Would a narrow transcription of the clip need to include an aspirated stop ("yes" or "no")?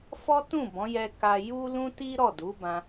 no